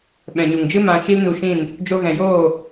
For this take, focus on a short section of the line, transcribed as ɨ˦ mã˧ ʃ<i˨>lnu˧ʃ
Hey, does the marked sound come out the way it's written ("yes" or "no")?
no